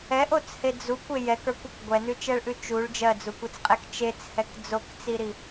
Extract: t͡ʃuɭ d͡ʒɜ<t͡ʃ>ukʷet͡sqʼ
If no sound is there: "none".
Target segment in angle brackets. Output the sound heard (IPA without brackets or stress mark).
d͡z